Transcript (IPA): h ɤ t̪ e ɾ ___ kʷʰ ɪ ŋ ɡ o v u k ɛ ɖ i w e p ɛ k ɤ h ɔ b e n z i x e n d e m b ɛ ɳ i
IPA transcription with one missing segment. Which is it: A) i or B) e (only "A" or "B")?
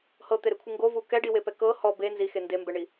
B